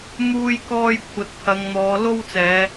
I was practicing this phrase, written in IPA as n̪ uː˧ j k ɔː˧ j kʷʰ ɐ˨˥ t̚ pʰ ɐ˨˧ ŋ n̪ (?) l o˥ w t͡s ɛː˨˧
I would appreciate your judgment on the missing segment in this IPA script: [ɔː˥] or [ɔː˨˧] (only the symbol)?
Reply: ɔː˨˧